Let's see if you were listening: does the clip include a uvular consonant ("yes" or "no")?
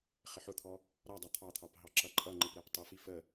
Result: yes